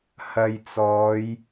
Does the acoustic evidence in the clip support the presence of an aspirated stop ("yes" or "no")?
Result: no